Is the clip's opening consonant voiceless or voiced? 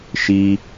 voiceless